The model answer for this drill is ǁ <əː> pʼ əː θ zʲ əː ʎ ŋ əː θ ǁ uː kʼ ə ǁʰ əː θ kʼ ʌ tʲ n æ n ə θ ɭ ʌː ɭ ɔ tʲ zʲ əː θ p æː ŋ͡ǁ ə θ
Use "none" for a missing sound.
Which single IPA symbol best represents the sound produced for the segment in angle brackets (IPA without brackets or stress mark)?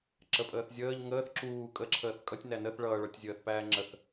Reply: ə